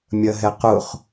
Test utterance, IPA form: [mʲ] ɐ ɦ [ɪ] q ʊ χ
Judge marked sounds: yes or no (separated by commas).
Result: yes, no